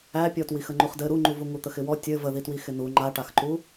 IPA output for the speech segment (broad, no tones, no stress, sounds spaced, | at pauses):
æ pʲ ɔ t w i x ə ŋ͡ǃ u χ d ɘ ɾ u ŋ͡ǃ u v u ŋ u t̪ ə x ɪ w ɔ tʲ ɘ v ə ð i t w i x ɪ n u ŋ͡ǃ a ʈ a x ǃ u